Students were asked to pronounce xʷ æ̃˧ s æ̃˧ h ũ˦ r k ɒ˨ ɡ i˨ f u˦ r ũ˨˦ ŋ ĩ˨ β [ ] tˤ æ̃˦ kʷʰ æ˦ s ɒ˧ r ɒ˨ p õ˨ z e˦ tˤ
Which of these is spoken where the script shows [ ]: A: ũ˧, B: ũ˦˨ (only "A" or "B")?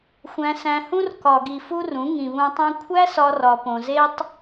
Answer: A